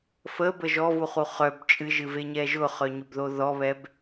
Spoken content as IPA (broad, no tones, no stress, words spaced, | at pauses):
fəbə ʒɔvuχu χœb t͡ʃʼɨʒɨveɲɛ ʒʊχœɲʊbðo ðɔβɛb